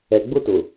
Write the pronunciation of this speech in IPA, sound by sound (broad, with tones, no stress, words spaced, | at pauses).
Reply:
ɛ˨ ɡ͡bʊ˦tʊ˨